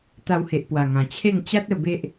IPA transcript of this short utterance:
t̪ a˧ w h e˨ ʔ p w a˨˩ ŋ ã˨˩ t͡ɕʰ e˥˧ ŋ t͡ɕ a˦ t̚ ə˧ b e˦ ʔ

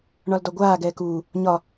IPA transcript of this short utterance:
ɳ ɒ l d ɒ ɡʷ aː ɡ ɛː k uː | ɲ ɒ

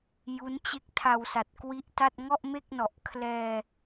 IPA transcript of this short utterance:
j u˦˥ n t͡ɕ e˥˩ k̚ tʰ a˧ w s a˨˩ t̚ k w i˦˥ ʔ t a˥˩ t̚ ŋ ɔ˥˩ ʔ m e˥˩ k̚ n ɔ˨˩ ʔ kʰ l ɛː˧

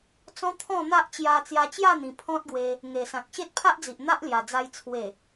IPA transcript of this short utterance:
t͡s ɔ̃˦ t̪ʰ ɔ̃˥˧ n̪ a˦ ʔ t͡ɕ j a˧ t͡s j a˧ t͡ɕ j a˥˧ n̪ ĩ˨˩ pʰ ɔ̃˦ t̚ ɡ w e˧ | ŋ e˨˩ s ã˨ k̚ ɕ e˦ t̚ pʰ a˦ ʔ d͡z i˨ ʔ n̪ a˦ ʔ l j a˨˩ d͡z a˧ j t͡sʰ w e˨˩

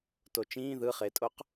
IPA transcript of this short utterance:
t o t͡ʃ ĩː ð ɯ χ e tʼ o q

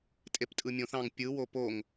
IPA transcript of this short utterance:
tʼ e p tʼ ɯ mʲ õ θ ɑ̃ ŋ pʲ ɯ w o p o ŋ

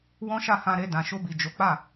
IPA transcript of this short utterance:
w ɔ̃˦ ʃ a˦˨ h ã˧ ɾ e˧ d ã˨ ʃ o˧ b i˨ d͡ʒ o˨˦ k͡p a˦˨

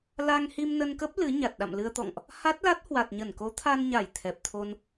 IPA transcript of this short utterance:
l a˧ ŋ h i˧ m n ə˧ n k ə˦˥ p̚ l ɨ˨˦ ɲ a˨˩ t̚ ɗ a̰˧˨ m l ɨ˧ ə̯ t̪ ɔ̰˧˨ ŋ ʔ | h a˦˥ t̚ l a˦˥ t̚ h w a˨˩ t̚ ɲ ə˧˩ n k o˨˦ t̪ʰ a˧ n ɲ a˧˩ j t̪ʰ ɛ˨˩ p̚ t̪ʰ o˧ n

